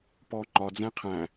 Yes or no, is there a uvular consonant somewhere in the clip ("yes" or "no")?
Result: yes